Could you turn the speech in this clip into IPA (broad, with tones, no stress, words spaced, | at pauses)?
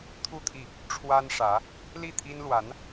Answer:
t̪ʰu˥˧t̪ʰi˥˩ | ʈ͡ʂʰwa˥nʂä˧˥ | li˥˩t̪ʰi˥n lwa˧˥n